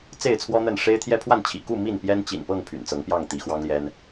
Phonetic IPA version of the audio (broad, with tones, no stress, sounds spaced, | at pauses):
t͡s e˥˨ ɪ̯ t͡sʰ w ɔ˦ n̪ ə˥˨ n ʂ e˦ ɪ̯ t̪ʰ j ɛ˦ pʰ w a˥˨ n t͡ɕʰ ḭ˨˩ k u˥˨ m i˥˨ n p j ɛ˦ n t͡ɕ ḭ˨˩ n p ɤ˥˨ ŋ pʰ y̰˨˩ n t͡s ɤ˨˦ ŋ p j ɑ˥˨ ŋ t̪ i˨˦ x w ɑ˦ ŋ l j ɛ˦ n